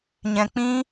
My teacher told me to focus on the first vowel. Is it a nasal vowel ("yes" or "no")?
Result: yes